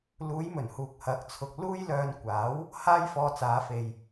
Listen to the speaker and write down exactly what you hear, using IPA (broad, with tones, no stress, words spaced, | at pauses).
luː˨˧jmɵ˨˩nhuː˨k̚ hɐ˨˥k̚t͡sʰʊ˨k̚ luː˥jlœː˧nkʷaː˨˥w | haː˥jfɔː˧t͡saː˨˧ fe˨j